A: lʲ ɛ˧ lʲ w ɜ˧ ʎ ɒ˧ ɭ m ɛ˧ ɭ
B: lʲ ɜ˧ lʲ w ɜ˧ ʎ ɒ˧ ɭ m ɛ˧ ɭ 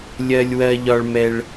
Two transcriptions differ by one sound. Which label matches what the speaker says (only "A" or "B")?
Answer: B